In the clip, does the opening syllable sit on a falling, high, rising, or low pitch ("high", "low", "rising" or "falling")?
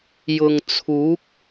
low